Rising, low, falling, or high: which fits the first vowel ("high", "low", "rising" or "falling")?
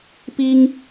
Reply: high